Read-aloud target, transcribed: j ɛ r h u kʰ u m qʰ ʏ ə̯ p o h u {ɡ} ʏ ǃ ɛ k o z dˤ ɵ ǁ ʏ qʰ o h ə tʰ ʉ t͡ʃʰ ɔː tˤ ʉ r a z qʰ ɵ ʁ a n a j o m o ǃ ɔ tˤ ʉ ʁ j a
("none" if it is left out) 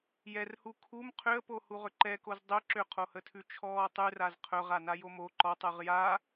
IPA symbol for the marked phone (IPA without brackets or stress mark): ʁ